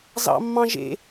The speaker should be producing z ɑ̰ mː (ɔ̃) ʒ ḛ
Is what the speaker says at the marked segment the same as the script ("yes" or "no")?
no